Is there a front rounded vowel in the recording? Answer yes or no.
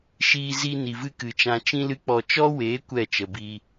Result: no